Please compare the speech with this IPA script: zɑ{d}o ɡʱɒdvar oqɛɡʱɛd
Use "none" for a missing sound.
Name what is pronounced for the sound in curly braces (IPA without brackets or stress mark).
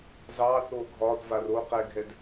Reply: θ